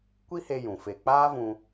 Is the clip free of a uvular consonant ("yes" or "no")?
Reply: yes